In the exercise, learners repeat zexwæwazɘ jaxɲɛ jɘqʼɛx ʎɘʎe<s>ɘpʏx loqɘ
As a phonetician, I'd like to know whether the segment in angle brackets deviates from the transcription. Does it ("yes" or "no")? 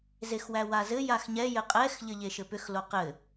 yes